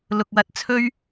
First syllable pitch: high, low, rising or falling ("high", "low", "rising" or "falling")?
low